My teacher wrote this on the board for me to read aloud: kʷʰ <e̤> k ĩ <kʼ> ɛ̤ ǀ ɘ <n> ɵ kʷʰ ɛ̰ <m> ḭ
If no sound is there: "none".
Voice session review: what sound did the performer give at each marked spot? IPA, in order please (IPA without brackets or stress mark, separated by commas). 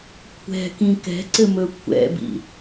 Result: ɛ̤, k, m, b